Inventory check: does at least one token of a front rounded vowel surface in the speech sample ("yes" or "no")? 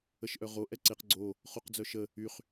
yes